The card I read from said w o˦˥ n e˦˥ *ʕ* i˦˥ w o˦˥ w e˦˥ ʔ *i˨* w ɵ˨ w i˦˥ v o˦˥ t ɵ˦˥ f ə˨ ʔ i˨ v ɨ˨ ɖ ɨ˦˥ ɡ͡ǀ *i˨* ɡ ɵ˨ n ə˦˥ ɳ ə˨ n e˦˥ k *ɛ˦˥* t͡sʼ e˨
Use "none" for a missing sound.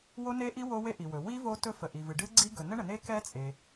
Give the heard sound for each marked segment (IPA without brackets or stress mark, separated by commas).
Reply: ʔ, i˨, i˦˥, ɛ˦˥